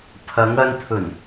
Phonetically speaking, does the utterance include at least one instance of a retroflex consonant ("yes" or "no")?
no